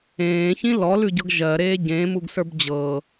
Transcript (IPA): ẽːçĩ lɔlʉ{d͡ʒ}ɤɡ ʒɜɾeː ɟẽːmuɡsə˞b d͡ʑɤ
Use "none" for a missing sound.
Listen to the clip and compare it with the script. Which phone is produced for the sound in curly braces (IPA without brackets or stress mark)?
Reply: ɟ